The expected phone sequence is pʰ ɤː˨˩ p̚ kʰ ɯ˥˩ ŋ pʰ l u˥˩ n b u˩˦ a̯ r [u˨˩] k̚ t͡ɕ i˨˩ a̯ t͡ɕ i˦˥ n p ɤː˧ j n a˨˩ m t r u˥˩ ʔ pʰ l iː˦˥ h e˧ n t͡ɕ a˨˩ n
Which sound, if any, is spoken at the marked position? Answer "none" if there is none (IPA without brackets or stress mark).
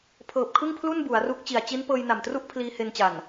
u˦˥